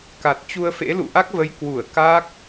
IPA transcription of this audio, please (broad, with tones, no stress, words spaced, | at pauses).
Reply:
ka˨˩t̚t͡ɕu˧ə̯fḛ˧˥ lṵ˧˨ʔa˦˥k̚və˨˦j kwu˧˩ə̯ ka˦˥k̚